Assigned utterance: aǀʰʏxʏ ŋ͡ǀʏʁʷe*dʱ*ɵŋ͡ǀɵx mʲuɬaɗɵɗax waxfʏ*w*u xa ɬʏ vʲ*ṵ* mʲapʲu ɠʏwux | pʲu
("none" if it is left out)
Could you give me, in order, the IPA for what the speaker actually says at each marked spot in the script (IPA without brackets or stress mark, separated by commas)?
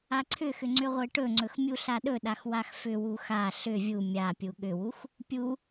ʈ, w, u